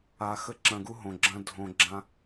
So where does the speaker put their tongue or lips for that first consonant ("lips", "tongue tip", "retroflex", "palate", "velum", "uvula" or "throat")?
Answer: velum